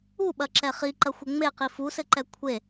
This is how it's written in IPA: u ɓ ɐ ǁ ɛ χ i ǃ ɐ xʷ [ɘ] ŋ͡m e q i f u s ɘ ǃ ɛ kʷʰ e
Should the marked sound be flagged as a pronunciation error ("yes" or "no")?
no